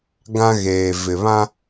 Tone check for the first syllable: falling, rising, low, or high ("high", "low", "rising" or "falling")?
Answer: high